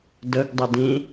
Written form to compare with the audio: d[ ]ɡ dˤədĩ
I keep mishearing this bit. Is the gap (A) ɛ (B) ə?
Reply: B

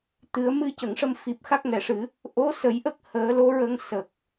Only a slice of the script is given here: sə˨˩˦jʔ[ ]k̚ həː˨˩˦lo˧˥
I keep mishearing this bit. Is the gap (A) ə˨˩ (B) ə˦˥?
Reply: B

